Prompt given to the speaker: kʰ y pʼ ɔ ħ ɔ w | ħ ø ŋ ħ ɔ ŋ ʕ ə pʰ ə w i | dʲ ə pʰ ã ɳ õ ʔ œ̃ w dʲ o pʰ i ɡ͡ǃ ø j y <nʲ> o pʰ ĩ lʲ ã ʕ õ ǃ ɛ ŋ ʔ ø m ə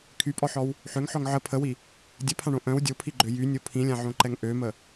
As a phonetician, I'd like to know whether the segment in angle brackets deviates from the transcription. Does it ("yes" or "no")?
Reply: no